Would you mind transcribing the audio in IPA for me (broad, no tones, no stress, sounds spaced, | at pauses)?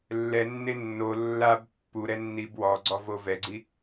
lː ɛ nː e nː o lː a b pː u ɾ ɛ nː i b w ɔ ɡ͡ǀ ɔ v o v ɛ ɡ͡ǀ i